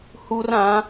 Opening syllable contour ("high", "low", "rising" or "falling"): high